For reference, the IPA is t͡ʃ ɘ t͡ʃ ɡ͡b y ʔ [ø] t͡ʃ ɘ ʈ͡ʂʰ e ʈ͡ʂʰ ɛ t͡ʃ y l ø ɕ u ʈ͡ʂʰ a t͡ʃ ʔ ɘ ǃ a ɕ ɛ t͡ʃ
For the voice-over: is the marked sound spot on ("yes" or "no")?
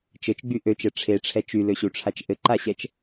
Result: yes